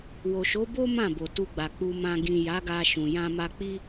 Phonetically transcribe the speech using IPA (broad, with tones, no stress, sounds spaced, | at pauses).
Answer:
w o˨ ʃ o˨˦ b o˦ m ã˦˨ b o˨ t u˧ ɡ͡b a˨ k͡p u˨ m ã˨ ɡ ĩ˨ j a˨˦ ɡ a˧ ʃ ũ˨ j ã˧ m a˧ k͡p i˦